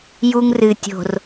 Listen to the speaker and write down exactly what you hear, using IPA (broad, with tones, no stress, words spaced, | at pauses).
ju˦ŋrɨ˨tʲo̤˨r